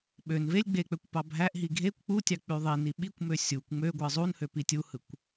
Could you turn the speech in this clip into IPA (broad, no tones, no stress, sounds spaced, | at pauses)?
ɓ ø n v e lʲ ɡ͡b e k͡p ø kʷ p ɑ bʱ æ ʔ ɦ i ɡʱ e kʷ k͡p u tʲ ɑ k͡p y ðˤ i n i ɓ i kʷ m ø sʲ u kʷ ŋ͡m ø ɡʷ ɯ zˤ u n h ø p i tʲ u h ɯ kʷ